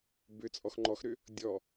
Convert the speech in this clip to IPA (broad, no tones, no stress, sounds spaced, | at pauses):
b ʏ t͡sʼ ɔ x ŋ͡ǃ ɔ x ɾ ʏ | dʲ ɔ